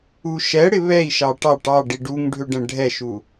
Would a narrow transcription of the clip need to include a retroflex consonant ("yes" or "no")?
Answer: yes